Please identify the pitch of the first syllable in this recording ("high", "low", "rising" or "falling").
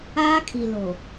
high